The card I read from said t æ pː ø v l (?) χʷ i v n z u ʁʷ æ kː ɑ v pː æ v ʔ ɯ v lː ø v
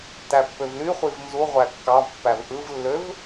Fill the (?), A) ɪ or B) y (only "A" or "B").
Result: B